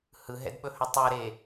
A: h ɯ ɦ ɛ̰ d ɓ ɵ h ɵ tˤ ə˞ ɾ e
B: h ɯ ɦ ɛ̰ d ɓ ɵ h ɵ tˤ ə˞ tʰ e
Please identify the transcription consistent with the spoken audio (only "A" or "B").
A